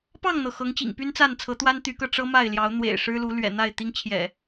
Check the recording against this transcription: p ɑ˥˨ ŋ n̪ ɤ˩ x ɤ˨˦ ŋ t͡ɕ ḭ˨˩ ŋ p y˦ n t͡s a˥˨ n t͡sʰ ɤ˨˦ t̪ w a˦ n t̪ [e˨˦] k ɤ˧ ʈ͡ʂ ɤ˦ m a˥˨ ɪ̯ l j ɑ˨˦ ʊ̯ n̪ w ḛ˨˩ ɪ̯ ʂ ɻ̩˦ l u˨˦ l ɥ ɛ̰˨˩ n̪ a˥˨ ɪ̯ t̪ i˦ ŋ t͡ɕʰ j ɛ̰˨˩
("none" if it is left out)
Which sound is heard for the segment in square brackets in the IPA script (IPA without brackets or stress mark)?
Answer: y˨˦